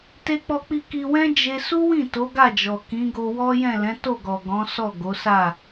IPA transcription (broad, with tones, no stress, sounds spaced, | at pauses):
t e˧ k͡p ɔ˧ k͡p i˧ k i˧ w ɛ̃˦ d͡ʒ e˦ s u˦ w ĩ˦˨ t o˨˦ ɡ a˦˨ d͡ʒ ɔ˨ k ĩ˨˦ ɡ o˧ w ɔ˦ j ɛ̃˦˨ l ɛ̃˨˦ t o˦˨ ɡ ɔ˨ ɡ ɔ̃˨˦ s ɔ˦˨ ɡ o˨˦ s a˦˨